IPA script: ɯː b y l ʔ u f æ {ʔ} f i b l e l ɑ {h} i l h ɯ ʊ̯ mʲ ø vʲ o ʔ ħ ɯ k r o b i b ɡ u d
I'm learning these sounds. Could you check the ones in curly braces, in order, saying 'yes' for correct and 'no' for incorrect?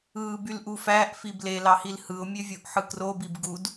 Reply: yes, yes

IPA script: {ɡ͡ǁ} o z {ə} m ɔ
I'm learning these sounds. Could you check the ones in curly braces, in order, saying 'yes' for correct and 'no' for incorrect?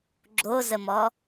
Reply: yes, yes

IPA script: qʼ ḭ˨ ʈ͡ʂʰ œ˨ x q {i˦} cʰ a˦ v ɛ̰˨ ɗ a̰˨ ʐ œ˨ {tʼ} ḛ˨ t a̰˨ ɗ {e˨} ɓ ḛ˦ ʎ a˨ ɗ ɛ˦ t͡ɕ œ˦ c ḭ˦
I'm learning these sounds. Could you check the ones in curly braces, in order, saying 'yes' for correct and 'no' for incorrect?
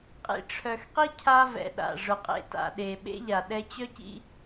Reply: yes, no, yes

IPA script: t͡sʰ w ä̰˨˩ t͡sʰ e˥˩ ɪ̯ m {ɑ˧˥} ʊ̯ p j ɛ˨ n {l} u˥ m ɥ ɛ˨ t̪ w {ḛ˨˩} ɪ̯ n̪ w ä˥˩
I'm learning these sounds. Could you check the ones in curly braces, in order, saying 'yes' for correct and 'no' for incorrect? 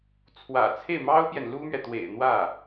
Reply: no, yes, yes

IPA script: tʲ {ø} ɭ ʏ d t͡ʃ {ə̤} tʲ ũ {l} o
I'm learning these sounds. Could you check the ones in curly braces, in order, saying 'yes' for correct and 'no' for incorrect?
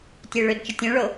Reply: yes, no, no

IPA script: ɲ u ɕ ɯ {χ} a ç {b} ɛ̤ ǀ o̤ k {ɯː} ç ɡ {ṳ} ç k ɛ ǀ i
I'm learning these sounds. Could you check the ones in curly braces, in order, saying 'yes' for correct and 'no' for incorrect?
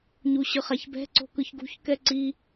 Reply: yes, yes, no, yes

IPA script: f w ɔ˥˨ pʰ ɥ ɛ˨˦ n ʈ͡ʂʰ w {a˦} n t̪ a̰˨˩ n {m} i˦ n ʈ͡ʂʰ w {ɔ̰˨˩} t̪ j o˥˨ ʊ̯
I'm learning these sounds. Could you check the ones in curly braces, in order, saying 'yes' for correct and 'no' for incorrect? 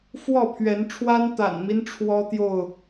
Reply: yes, yes, no

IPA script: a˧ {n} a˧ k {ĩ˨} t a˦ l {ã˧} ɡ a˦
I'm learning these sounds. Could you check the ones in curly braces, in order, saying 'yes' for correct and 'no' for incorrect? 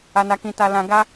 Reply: yes, no, yes

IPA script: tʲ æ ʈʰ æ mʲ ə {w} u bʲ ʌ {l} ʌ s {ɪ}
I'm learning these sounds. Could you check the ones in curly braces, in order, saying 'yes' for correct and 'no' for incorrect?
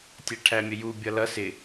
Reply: no, yes, yes

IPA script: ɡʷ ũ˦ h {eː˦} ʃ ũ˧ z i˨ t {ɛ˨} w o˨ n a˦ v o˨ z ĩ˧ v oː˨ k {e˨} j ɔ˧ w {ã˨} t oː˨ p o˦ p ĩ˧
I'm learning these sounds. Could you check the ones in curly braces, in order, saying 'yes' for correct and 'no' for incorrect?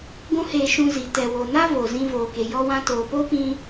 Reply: no, yes, yes, no

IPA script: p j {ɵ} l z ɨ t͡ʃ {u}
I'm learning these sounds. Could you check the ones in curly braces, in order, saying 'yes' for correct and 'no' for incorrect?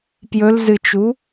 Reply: yes, yes

